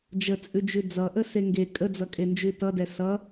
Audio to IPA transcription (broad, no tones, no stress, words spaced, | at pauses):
d͡ʒət͡sʼʉd͡ʒʉ d͡zʌʔəse ŋɡe kʼəd͡zʌkʼend͡ʒʉ tʌdɛ sʌ